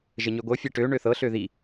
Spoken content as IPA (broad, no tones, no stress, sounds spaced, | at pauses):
ʒ ə ɲ ø ɡʷ ɤ fʲ ɛ ʈ ø ɳ ø θ ɤ ɬ ø ð i